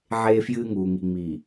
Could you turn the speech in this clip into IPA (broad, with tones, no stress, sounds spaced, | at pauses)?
ʕ eː˦ f j ɨː˦ ŋ uː˨ ŋ i˨ ŋ͡m i˨